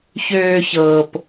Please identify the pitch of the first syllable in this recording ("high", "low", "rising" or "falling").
low